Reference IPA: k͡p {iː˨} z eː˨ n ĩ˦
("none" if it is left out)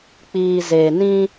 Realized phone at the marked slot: iː˨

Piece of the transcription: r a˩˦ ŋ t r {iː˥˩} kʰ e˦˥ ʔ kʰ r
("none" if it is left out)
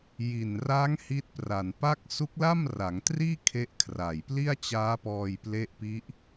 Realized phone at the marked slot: iː˥˩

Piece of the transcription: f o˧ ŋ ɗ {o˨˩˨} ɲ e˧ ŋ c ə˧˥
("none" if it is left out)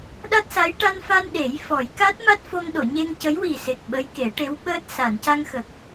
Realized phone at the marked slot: o˨˩˨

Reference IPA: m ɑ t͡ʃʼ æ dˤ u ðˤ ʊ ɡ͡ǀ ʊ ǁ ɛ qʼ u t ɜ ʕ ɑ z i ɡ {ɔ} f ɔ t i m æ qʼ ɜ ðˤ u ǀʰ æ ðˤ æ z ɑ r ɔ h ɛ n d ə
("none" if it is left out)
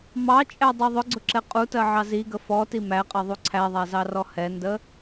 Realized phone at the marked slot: ə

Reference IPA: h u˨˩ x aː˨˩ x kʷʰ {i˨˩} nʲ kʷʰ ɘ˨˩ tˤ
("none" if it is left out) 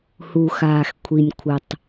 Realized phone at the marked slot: i˨˩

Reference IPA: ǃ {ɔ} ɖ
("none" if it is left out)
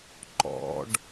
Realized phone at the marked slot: ɔ̰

